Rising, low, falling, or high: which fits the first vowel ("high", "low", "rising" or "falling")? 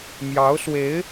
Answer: rising